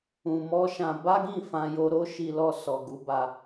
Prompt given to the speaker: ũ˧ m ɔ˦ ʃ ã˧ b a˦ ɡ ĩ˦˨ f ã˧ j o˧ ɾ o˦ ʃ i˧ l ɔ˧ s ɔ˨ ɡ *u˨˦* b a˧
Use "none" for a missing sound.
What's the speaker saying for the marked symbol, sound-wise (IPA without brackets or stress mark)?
u˨˦